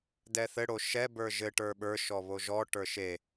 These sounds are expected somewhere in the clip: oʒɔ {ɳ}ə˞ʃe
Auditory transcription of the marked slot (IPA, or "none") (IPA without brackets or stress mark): ʈ